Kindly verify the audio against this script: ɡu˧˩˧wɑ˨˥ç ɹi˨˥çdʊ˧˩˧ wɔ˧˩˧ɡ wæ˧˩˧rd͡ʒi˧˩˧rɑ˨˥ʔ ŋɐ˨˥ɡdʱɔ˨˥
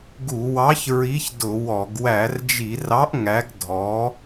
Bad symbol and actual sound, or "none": ɐ˨˥ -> æ˨˥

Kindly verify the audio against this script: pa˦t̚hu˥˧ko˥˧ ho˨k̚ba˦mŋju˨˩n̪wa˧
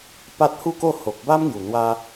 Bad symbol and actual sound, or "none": none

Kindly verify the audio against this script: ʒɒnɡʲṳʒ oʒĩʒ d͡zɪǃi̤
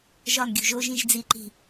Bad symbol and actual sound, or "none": ɪ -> i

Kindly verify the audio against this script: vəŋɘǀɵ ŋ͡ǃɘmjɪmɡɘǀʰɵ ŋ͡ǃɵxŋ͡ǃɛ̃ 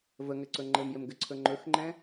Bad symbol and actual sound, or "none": none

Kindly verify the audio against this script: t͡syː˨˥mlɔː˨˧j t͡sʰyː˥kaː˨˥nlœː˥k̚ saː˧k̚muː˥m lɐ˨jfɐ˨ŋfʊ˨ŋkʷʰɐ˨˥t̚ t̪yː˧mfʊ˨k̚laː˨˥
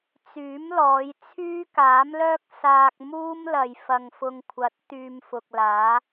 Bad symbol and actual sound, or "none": n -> m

